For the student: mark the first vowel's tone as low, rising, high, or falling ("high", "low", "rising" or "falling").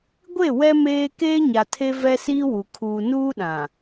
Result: falling